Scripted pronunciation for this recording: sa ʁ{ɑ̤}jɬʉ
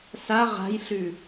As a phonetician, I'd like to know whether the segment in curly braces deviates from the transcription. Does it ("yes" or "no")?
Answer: yes